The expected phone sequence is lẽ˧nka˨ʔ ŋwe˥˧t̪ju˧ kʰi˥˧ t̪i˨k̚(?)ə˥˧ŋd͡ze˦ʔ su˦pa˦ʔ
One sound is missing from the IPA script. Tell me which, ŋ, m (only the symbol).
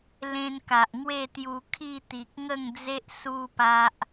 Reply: ŋ